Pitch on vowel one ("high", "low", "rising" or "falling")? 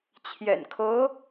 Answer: low